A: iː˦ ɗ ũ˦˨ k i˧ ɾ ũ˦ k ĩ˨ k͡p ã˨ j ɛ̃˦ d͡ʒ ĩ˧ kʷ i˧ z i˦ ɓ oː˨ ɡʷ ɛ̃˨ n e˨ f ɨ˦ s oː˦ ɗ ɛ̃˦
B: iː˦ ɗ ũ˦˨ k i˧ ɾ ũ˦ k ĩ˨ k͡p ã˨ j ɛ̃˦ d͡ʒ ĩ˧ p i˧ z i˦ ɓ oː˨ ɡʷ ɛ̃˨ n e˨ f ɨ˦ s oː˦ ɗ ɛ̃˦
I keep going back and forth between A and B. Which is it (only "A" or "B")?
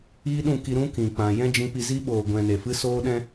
B